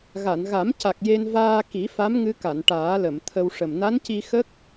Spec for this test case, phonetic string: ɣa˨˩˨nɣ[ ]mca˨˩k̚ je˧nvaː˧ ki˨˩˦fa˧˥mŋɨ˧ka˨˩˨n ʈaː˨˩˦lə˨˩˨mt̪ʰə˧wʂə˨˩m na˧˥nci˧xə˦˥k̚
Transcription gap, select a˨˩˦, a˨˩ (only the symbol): a˨˩˦